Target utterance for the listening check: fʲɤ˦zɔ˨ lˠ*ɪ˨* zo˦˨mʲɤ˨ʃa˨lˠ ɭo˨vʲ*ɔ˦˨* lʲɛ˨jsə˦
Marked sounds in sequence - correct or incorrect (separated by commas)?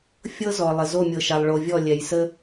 correct, correct